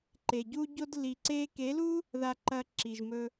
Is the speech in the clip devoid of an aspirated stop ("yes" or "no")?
yes